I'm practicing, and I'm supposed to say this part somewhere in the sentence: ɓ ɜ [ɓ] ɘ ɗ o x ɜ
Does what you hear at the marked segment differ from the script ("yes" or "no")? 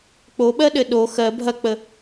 yes